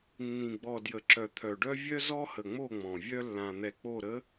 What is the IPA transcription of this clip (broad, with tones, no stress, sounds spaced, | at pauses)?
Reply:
nː ĩ˨ ɡ͡b ɔ˨ d j ə˨ ǁ œ˨ t̪ʰ œ˨ ɖ œ˦ vʲ œ˦ z ɔ˦ h ə˨ ŋ͡m o˦˨ ŋ͡m ɔ̃˨ vʲ œ˦ lː ã˨ n̪ ɛ˨ k͡p o˦˨ ɾ ə˨˦